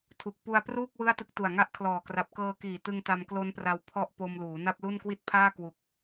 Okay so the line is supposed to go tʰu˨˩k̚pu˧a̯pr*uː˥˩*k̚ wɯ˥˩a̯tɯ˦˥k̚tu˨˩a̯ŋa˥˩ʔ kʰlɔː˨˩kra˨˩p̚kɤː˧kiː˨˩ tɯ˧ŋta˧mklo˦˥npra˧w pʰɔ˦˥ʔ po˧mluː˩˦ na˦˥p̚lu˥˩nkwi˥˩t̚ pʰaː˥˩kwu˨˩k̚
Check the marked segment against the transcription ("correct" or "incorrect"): correct